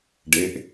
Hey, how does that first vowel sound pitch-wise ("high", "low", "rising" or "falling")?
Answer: rising